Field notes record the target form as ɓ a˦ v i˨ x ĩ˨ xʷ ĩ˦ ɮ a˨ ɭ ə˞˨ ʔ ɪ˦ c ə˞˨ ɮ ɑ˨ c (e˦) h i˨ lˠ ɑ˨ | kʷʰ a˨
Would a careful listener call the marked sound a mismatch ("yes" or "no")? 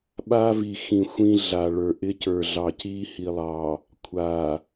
yes